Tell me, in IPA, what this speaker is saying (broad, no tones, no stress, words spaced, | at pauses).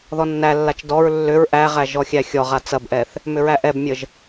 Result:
ðɔnːælːat͡ʃ dɔɹ lːʏɹ ʔæʁæ ʒɔxʲæxʲɔʁa t͡sɐbʔɛθ | mʏɹæʔɛbmʲəʒ